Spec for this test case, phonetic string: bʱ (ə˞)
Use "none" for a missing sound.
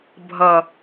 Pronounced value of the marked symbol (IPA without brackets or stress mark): ʌ